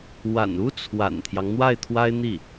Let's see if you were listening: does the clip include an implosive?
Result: no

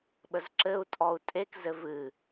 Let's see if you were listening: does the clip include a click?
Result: yes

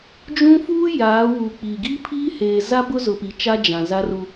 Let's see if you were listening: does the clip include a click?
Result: no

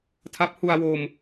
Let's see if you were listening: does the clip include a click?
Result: no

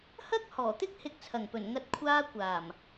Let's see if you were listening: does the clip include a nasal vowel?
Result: no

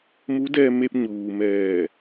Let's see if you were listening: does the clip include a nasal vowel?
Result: no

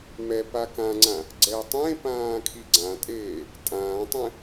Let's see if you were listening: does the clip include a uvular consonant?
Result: no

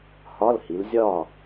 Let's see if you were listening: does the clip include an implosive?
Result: no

